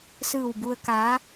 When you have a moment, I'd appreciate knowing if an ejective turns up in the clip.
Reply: no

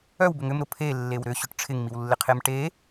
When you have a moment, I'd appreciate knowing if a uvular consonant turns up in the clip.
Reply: yes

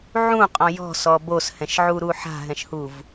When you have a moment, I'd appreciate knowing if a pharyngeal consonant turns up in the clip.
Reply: yes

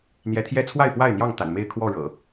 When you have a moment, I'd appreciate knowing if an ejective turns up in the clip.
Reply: no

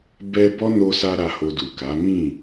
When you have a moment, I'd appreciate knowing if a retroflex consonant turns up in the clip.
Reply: no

